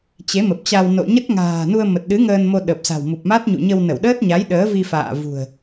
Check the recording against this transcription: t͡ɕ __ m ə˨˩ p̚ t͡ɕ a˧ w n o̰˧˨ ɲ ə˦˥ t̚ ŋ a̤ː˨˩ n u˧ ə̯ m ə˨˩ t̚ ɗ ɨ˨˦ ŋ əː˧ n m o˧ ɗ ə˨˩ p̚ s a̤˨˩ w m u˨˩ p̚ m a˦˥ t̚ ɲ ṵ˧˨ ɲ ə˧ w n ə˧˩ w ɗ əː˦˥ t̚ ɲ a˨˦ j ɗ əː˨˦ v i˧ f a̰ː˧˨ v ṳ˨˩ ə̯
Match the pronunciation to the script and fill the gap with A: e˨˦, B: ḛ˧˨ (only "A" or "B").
A